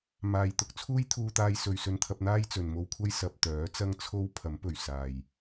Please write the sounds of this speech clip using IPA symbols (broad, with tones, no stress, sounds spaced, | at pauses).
m aː˨ j t̪ ʊ˨˥ k̚ t͡sʰ uː˥ j t̪ʰ uː˧ t̪ aː˧ j s ɵ˨ ɥ s ɵ˧ n t̪ʰ ɐ˧ p̚ n̪ aː˥ j t͡s ɵ˨ n m o˥ w kʷʰ ɐ˥ j s ɐ˨ p̚ t̪ œː˨˥ t͡s ɐ˥ ŋ t͡sʰ o˥ w pʰ ɐ˨˥ m p ɵ˨˩ ɥ s aː˨˩ j